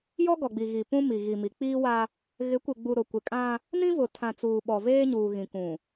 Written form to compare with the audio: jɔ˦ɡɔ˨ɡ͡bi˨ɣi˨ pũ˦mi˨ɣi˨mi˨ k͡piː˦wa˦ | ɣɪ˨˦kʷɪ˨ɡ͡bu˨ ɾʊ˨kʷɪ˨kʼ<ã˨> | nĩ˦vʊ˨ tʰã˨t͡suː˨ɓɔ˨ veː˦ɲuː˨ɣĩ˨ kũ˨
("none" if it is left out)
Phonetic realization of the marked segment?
ã˦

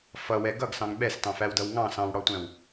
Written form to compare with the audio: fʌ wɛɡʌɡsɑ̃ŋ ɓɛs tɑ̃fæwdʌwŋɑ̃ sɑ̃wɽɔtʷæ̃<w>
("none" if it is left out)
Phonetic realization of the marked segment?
w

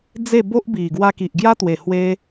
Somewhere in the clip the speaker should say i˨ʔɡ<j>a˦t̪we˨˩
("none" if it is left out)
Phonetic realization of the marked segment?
j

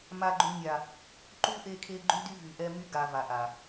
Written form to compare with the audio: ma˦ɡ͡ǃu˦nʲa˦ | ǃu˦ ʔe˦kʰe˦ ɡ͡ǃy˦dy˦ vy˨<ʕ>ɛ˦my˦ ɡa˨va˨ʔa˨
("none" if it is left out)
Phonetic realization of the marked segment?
ʔ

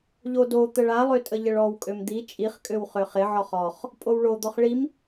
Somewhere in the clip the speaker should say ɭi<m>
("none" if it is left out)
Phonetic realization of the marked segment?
m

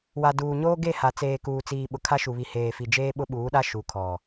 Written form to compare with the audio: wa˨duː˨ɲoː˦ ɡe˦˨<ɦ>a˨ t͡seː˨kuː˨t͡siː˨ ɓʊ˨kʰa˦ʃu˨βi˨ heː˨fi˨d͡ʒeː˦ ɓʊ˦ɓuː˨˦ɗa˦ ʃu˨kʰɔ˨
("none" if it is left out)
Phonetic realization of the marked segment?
h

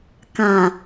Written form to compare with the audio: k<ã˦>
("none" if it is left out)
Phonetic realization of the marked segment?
ã˨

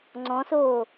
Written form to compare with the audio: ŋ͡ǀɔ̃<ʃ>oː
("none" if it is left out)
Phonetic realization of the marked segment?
s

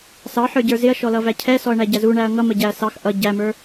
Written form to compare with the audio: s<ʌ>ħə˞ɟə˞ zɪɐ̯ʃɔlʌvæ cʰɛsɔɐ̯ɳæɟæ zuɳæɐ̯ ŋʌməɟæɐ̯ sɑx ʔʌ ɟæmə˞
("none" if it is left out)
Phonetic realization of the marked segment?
ɑ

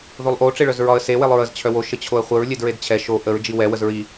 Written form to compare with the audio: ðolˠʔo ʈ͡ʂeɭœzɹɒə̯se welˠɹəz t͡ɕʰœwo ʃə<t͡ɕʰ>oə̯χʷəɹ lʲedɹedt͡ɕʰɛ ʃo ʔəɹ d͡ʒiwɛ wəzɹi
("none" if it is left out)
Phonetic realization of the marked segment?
t͡ɕʰ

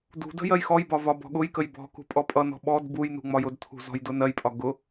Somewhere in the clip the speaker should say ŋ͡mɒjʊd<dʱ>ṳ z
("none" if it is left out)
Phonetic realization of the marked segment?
tʰ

